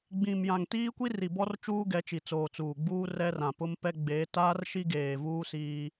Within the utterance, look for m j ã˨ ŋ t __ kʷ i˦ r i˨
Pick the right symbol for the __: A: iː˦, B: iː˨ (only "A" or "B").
A